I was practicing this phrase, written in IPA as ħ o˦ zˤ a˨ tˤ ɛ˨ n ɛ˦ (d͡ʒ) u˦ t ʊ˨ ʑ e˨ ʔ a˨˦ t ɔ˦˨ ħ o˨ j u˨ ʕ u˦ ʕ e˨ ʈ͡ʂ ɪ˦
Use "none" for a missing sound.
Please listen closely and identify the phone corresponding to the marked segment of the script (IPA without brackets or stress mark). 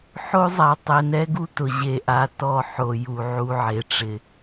ɡ